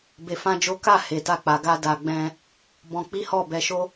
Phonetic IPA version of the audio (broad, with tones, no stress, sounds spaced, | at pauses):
b e˧ f ã˦ d͡ʒ o˦ k a˦˨ h e˨ t a˧ k͡p a˨ ɡ a˧ d a˨ ɡ͡b ɛ̃˧ | b ɔ̃˧ k͡p i˦ h ɔ˦˨ b ɛ˧ ʃ o˦